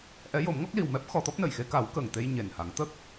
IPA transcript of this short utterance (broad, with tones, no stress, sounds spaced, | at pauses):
ʔ ɛ˧˥ j o˨˩˦ m ŋ ɔ˦˥ k̚ l i˨˩ w m ɛ˦˥ p̚ x ɔ˨˩˦ t̪ ɔ˦˥ p̚ n ə˨˩˨ j x e˧˥ k a˨˩˦ w k əː˨˩ ŋ t̪ e˧ j ɲ e˨˩ n h a˨˩˦ ŋ t̪ ə˦˥ k̚